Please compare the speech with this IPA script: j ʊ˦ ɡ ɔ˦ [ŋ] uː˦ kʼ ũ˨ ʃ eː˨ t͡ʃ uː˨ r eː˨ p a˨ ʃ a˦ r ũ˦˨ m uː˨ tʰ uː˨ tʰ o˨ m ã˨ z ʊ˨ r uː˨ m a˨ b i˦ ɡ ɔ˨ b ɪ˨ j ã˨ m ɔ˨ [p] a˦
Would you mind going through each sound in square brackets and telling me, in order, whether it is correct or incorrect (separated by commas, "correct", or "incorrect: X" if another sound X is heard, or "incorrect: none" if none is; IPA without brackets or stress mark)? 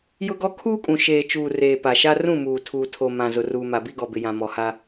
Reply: incorrect: kʰ, incorrect: h